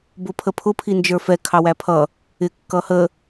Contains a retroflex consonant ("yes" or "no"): no